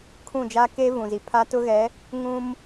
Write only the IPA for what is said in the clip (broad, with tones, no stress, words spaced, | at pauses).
kʰũ˦˨d͡ʒaː˦ ke˦ vũ˨zi˨pʰa˦ tʊ˦ɣɛ˨˦ | ŋũ˦m